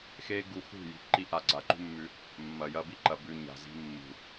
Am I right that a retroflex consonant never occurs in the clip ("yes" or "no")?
yes